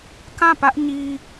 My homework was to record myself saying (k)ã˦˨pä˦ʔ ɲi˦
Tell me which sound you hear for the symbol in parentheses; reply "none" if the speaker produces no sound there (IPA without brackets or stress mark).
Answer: k